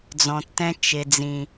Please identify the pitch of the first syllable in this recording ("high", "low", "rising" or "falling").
low